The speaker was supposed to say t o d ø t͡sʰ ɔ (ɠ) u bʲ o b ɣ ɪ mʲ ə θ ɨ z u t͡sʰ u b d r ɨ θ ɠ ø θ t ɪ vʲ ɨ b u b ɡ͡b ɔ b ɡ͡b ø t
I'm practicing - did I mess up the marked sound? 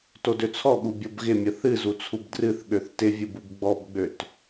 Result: no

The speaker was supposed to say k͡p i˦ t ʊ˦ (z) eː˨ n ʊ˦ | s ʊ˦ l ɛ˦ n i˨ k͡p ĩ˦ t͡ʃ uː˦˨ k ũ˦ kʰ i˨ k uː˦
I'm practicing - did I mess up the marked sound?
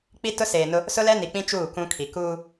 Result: yes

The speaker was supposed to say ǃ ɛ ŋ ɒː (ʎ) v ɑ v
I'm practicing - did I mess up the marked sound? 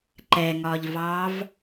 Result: no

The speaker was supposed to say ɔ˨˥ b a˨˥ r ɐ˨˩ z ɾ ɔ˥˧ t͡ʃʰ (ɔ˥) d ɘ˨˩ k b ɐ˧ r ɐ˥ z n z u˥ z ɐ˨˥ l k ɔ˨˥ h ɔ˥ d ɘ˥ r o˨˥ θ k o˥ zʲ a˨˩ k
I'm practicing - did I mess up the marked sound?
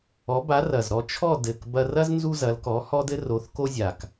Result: yes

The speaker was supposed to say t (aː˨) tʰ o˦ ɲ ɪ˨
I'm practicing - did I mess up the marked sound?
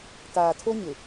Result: no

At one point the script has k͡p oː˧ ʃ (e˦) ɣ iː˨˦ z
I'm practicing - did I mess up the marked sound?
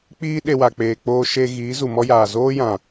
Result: yes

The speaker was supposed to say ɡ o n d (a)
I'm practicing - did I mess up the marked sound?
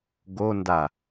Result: no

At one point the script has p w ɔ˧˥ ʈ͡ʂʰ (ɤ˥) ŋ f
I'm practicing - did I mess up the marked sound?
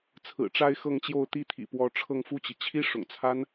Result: yes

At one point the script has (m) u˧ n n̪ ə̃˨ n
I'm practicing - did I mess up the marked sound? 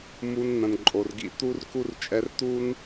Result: no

